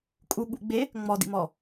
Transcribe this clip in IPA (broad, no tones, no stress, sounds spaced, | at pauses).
kʼ u ɠ ṵ ɡ͡b e | ŋ͡m ɔ d ḭ m ɔ